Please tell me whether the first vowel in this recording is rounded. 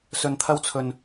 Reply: yes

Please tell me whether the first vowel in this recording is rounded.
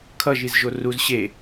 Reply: no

